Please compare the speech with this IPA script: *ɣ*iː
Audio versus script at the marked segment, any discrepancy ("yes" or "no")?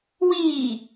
yes